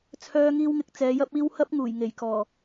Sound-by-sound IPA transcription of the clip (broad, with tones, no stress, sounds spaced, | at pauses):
t͡sʰ œː˧ ŋ iː˧ w ŋ ɪ˨ k̚ t͡s ɛː˨˧ j ɐ˥ p̚ iː˥ w h ɐ˥ p̚ ŋ uː˨˩ j ŋ e˨˩ j k ɔː˨˩